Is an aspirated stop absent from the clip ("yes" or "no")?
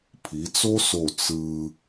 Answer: no